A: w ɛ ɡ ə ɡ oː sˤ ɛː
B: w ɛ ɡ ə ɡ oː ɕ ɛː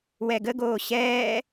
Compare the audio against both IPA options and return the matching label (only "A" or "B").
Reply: B